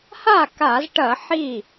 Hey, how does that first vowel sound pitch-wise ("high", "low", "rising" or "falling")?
falling